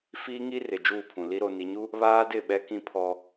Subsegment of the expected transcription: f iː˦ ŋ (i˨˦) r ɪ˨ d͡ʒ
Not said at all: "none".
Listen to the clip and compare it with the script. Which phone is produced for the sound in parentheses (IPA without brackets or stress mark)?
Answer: i˦